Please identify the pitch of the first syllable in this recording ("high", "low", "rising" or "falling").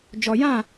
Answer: low